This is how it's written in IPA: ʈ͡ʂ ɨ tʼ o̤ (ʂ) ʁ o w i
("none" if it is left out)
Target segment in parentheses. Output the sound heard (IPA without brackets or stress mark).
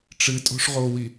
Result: ʂ